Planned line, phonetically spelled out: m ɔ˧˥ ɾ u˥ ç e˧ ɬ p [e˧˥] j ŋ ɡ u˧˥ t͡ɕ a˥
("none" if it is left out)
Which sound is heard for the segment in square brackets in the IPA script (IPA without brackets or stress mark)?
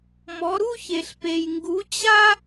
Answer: e˧